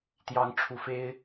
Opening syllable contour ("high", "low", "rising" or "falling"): rising